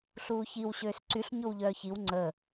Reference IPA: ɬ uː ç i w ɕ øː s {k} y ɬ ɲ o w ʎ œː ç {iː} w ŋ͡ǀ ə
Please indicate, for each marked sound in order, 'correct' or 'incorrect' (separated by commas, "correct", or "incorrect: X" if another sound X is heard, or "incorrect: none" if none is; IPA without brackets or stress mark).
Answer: incorrect: ǀ, incorrect: i